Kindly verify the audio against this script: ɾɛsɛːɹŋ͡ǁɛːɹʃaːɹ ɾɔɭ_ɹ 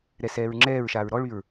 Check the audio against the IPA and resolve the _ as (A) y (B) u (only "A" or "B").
A